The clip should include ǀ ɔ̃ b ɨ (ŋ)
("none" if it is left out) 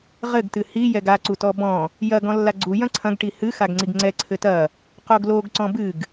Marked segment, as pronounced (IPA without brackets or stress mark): ɡ